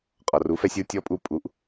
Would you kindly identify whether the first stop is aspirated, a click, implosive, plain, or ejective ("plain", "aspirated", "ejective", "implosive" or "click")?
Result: ejective